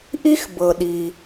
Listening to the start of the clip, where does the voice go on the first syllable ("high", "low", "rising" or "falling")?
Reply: high